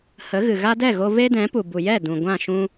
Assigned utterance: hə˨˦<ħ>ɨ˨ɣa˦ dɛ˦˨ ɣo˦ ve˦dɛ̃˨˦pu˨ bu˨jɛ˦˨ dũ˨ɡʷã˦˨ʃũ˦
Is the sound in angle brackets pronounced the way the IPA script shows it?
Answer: no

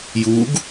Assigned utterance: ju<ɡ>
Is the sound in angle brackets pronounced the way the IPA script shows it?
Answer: yes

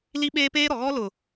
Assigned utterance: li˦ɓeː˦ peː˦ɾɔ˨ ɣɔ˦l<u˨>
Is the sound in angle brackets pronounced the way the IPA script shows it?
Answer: no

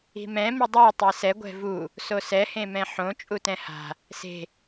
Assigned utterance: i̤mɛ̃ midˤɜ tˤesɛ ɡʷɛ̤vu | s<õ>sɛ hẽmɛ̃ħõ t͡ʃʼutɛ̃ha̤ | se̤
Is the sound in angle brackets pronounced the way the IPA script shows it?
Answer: no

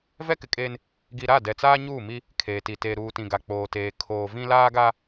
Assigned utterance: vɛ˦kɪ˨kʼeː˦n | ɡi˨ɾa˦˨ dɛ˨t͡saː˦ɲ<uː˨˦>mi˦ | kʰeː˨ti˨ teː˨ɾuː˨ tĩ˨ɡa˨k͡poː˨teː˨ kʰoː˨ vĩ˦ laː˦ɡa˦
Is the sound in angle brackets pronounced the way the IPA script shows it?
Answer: no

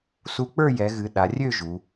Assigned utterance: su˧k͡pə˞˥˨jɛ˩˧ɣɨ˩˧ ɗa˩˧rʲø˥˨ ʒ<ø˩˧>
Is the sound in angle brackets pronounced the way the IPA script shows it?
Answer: no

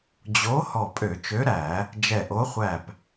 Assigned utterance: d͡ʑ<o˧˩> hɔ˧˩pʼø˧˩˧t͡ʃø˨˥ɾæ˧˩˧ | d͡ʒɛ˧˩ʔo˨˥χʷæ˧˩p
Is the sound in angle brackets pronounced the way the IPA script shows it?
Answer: no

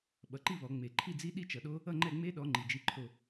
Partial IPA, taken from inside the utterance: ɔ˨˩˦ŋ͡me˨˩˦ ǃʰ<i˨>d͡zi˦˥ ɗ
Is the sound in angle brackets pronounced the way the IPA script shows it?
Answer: no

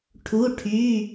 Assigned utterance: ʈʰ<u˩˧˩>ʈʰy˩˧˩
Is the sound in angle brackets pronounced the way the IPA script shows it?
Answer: yes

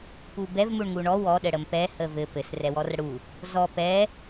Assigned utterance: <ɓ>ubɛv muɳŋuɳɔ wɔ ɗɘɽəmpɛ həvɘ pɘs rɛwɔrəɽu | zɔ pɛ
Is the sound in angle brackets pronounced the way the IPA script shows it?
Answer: no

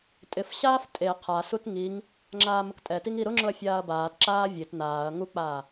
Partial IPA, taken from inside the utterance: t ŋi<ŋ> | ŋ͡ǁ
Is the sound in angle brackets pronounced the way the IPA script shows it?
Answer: yes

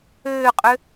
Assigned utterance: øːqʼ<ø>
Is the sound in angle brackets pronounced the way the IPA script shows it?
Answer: yes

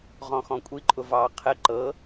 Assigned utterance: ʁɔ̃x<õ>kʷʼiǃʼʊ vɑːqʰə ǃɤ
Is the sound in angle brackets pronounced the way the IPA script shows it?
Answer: no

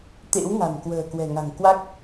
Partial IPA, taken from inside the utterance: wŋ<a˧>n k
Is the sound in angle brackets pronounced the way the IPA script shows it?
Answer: no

